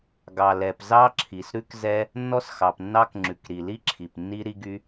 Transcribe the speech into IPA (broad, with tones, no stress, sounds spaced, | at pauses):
ɡ ɑ˩ l ɛ˩ p z ɑ˥ ǁʰ i˩ s ɾ ʉ˥ k z ɛ˥ | nː ɔ˥ s x ɑ˩ p nː ɑ˥ k ŋ͡ǁ ʉ˩ k ɾ i˩ l i˥ ǁʰ i˩ p nː i˥ ɾ i˥ ɡ y˥